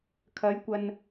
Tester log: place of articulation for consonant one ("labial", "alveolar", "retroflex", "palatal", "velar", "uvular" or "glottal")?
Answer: velar